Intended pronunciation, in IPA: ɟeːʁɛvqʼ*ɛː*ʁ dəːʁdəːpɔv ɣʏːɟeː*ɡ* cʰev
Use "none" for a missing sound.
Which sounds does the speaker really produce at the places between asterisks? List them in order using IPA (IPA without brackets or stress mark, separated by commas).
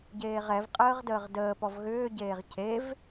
əː, ʁ